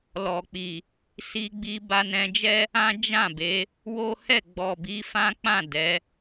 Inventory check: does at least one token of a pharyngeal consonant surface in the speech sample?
no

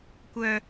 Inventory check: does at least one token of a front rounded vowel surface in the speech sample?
yes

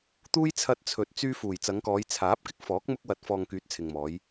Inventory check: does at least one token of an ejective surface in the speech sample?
no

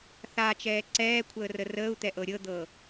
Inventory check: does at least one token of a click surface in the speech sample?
yes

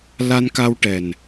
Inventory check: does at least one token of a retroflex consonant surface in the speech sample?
yes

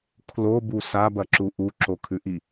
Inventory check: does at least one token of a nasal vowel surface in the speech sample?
no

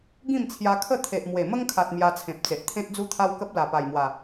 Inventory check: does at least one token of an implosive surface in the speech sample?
no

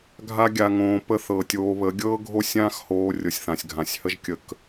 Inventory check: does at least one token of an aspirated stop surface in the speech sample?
no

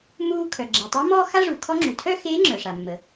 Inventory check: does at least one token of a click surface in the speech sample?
yes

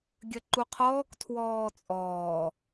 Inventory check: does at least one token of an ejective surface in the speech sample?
yes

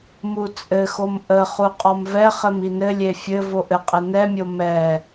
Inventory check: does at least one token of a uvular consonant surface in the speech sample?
yes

